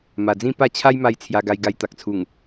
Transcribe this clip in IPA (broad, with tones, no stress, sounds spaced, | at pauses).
m a˨˩ d͡z ĩ˥˧ p a˥˧ t͡ɕʰ a˦ j m a˥˧ j t͡sʰ j a˧ ɡ a˧ j ɡ a˧ j t̪ a˨ k̚ t͡sʰ u˨˩ ŋ